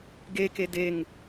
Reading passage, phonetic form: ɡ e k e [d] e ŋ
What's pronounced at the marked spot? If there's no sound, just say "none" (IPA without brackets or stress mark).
d